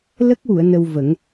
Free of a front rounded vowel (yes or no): yes